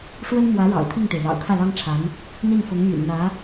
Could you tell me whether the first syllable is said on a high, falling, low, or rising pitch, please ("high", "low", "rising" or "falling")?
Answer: high